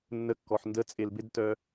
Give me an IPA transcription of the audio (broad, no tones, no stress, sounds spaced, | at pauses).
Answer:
nː ə kː ɔ ħ n d ə t͡sʼ e l b ɪ d t œ